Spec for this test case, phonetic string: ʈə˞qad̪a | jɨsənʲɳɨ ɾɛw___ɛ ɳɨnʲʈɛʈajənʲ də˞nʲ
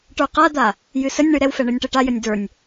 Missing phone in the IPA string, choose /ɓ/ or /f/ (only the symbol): f